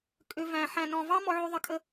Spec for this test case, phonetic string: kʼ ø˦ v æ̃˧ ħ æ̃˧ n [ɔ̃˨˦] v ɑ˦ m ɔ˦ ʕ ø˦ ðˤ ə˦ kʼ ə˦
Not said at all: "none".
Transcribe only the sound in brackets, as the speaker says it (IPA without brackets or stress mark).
ɔ̃˧